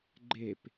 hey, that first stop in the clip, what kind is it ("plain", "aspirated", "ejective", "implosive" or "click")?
click